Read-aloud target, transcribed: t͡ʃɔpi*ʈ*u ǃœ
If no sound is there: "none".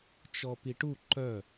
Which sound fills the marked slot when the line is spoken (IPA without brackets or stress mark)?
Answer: ʈ